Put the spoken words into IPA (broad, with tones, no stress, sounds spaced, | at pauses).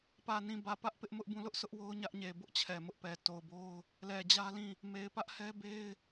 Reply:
p ä˨ n ĩ˨ b ä˨ p ä˦ ʔ p ɪ˦ ʔ m ʊ˦ ʔ b ũ˦˨ l ʊ˦ ʔ sʰ ʊ˦ ʔ w o˦ ʊ̯ ɲ ä˦ ʔ ɲ e˨ b ʊ˦ ʔ t͡ɕʰ ɛ˨ m ʊ˦ ʔ p ɛ˨ t o˨ ʊ̯ b o˦ ʊ̯ | l ɛ˨ d͡ʑ ä˦ l ĩ˦˨ | m e˨ ɪ̯ p ä˦ ʔ h ɛ˦ b e˦ ɪ̯